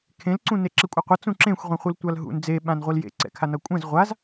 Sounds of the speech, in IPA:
kʰẽlǀũ neǁɛkʷʼʌqʷʌ t͡sũǁẽxʷʁʷĩχʷɯl tʷalɦṵn d͡zeɓãn ʁʷiljḛǀɛ̰kʰa nʌkʷʼɛ̃z ʁʷaz

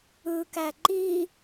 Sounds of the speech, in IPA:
ɯkæ ǃi

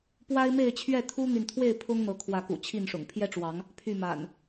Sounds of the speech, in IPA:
pwa˦ɪ̯me˥˨ɪ̯t͡ɕʰɥɛ˥˨ t̪ʰu˦n̪y˨nt̪ʰwe˥˨ɪ̯ pʰʊ˦ŋn̪ɤ˨˦kʰwä˨˦kṵ˨˩ t͡ɕʰi˥˨nʂʊ̰˨˩ŋ pʰjɛ˦ʈ͡ʂwɑ˨˦ŋ | pʰy˥˨ma̰˨˩n

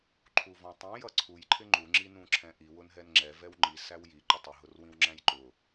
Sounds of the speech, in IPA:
ǃʰuvɔ̃tˤũ jʌǀʰuj ǃʰɪŋ͡ǃu ŋ͡ǁinũǁʰɛ̃ʔi wʊnɦɛnŋ͡ǁɛ vɛwŋ͡ǃi sæwji ǃɪtˤɪ ɦʊrwĩwŋ͡ǁæ̃jǃʊ

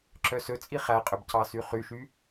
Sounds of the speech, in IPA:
ǁœsɵt͡sʼi χæqʼɵb cɑsyχyʃy

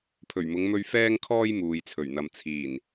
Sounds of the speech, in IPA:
pʰɵ˨˩ɥmʊ˨˧ŋ mɵ˥ɥ fɛː˥ŋkʰɔː˥j muː˨jt͡sʰɵ˨˩ɥn̪ɐ˨m t͡sʰiː˨˩n

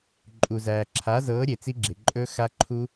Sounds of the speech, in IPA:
ǃʼu˩zæː˩ǁʰa˩˥zɤː˩˥ ɾʲe˩t͡si˦˥ɡ͡ǁe˩ ǃʼɵ˦˥ xa˦˥ǃʰu˦˥

